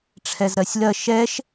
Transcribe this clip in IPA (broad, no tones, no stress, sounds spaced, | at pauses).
ʈ͡ʂʰ ɛ z ɾ ɜ sʲ l ɜ ʃ ɛ ʃ